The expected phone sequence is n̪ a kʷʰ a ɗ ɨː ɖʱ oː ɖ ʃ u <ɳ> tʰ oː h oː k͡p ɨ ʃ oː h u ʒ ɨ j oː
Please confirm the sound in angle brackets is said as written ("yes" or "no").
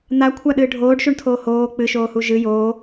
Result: yes